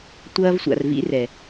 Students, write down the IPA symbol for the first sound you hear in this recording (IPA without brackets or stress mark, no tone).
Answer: tʷ